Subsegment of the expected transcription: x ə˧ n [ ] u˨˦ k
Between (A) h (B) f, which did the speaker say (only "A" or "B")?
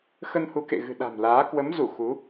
A